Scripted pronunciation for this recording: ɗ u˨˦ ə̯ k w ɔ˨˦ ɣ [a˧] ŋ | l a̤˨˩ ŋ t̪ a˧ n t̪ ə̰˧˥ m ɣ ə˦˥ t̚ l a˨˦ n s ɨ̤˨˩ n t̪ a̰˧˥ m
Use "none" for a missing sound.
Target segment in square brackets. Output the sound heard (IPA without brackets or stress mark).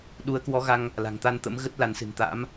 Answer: a˧